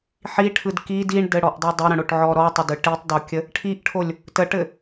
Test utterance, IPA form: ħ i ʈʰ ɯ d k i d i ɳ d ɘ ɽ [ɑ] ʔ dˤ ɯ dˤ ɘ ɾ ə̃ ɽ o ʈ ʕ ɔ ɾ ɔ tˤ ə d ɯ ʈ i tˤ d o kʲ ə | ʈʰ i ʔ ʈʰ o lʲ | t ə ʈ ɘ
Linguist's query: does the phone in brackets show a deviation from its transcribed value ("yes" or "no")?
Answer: yes